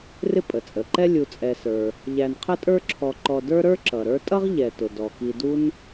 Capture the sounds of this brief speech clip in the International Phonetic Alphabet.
rɪ˦pʼə˩t͡sʼə˩ǃɛ˦ lʲu˨t͡sʼɛ˨sə˞˨ | ʎæ˨nqʰə˦tʼə˞˦ǁʰɔ˨ ǃɔ˨də˞˦ ɾə˞˦ ǁʌ˩ɾə˞˦ tʼʌ˦ʁʎɛ˩tʊ˩ dɔ˩ki˨du˥n

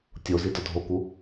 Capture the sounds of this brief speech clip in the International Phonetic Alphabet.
tʲozi dɒdʱoku

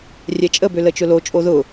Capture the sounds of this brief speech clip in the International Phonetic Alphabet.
rʲɛt͡ʃʼə bølət͡ʃʊlo t͡ʃʼoðʊ

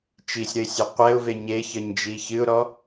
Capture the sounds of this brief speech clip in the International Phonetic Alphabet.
t͡ʃisʲɾəɪ̯sʲɒ qʷɛʊ̯ve ɲeçəɲd͡ʒi çɨʊ̯ɾɔ

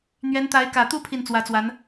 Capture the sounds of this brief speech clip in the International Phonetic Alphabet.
n̪ɥɛ˧˥nt̪a˧˥ɪ̯ kä˨˩t̪u˥ pʰi˥˩nt͡swä˧˥t͡swa˧˥n

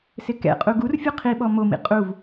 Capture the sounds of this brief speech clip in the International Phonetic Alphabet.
sɪkɛ̰qʼu ɡurfʲu qʰiɓɔ momḭ qʼuv

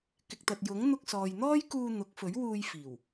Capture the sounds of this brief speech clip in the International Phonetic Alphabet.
kɪ˨k̚t̪ɐ˨t̚ jʊ˨˥ŋ n̪ʊ˧k̚sɔː˨jn̪ɔː˥jkuː˧ n̪ʊ˨˥k̚fɵ˨˥ɥwuː˧j fiː˨˩w

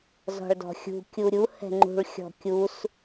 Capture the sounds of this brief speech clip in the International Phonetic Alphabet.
zɔ̤ɭdɔ̤xʲṳ kʲuɾʲu hɛ̤ŋ͡ǃṳɭ xʲɔ̤kʲus

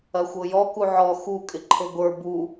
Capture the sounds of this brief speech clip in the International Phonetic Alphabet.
ɐxʷɤjɔ kuʕɔ xu kʼɪǃʰɤɡʷə˞ bu

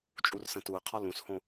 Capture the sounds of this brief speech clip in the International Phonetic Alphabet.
t͡ʃʼursə̃tuə̯qʰɒ lũshõ

